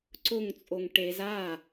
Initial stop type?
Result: click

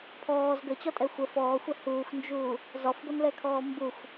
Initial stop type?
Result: aspirated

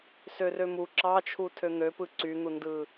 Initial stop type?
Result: click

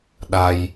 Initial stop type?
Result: implosive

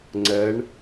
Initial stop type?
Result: click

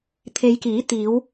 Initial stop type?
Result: aspirated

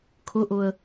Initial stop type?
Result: aspirated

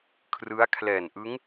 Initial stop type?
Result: aspirated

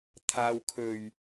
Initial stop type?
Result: aspirated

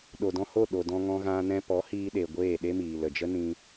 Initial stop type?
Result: implosive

